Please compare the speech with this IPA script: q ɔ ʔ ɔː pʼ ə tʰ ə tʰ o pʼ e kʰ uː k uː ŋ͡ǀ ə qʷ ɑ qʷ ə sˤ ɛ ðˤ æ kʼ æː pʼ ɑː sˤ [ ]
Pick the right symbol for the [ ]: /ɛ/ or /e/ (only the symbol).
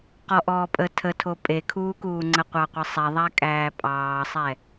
ɛ